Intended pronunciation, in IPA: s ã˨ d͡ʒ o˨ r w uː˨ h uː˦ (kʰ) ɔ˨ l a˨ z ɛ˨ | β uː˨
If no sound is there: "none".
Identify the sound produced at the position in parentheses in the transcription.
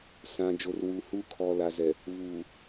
kʰ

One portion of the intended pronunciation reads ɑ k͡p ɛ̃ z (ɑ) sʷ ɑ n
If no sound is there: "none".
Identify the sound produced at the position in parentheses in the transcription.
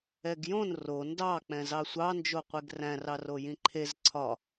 ɑ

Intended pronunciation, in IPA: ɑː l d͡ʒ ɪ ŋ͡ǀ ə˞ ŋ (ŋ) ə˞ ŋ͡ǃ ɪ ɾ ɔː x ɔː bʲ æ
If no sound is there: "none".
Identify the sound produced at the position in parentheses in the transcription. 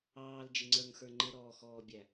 x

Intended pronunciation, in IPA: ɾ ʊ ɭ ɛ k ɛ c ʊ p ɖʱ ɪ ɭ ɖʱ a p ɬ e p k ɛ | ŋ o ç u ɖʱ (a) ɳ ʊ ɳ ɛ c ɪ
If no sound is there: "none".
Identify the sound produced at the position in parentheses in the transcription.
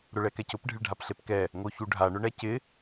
a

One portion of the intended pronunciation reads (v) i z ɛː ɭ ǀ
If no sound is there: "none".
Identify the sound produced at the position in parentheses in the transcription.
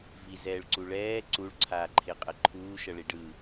v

